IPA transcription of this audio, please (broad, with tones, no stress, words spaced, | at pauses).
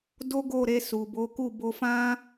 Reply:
do˦ɡo˦˨ɾe˧ su˨bo˨˦ ku˦˨bo˧fã˦